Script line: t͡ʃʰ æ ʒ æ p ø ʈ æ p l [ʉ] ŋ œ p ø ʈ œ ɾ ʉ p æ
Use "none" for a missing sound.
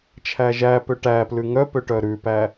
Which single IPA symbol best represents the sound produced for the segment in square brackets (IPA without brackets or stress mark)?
ʉ